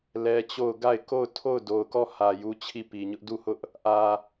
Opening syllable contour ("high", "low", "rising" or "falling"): high